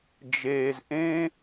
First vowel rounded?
no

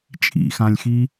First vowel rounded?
no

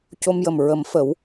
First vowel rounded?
yes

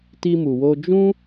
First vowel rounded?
no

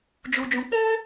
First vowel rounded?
yes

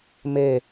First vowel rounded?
no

